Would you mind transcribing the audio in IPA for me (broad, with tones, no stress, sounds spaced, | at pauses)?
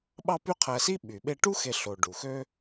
ɓ ɑ˦ p y˦ qʰ æ˨ s i˥ ɓ y˩ ɓ e˦ ʈ u˥ x e˨ ɬ o˩ ɖ u˩ x ø˦